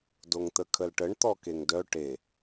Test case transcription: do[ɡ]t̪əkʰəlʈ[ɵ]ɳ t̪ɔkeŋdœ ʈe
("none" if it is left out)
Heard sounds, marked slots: ŋ, ə

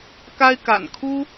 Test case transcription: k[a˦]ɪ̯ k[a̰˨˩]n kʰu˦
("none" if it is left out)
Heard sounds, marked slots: a˦, a̰˨˩

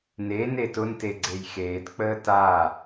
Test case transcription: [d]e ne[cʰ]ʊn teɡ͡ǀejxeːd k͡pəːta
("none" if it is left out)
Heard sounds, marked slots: n, t

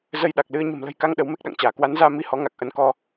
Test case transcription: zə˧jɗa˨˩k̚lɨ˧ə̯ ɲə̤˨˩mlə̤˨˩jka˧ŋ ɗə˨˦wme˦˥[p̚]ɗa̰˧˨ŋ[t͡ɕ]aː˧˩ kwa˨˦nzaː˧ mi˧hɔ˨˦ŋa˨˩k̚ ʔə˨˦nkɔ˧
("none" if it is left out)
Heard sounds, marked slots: k̚, t͡ɕ

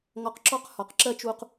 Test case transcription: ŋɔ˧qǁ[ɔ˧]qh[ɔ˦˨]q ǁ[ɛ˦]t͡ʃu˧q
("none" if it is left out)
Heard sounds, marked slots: ɔ˦, ɔ˨, ɜ˦

